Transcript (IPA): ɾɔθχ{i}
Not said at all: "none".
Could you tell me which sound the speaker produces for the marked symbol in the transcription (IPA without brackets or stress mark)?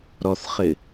ɪ